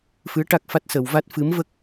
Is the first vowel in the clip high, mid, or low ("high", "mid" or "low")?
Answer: high